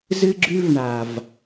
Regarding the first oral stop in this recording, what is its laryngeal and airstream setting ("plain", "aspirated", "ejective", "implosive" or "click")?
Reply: click